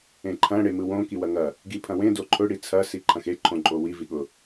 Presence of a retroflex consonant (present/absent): present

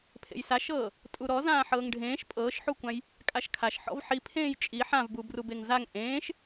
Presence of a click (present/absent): absent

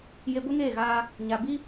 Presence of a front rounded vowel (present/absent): absent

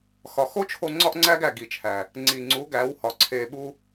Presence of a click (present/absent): present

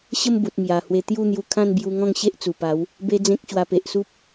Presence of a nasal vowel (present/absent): present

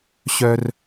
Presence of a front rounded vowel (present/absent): present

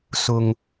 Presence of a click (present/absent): absent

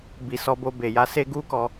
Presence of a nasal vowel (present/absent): absent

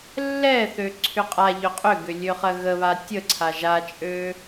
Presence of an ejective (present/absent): present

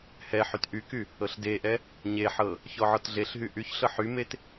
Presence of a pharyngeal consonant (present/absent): present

